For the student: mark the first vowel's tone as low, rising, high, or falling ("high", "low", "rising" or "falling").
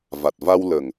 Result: low